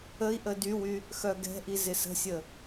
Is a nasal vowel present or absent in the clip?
absent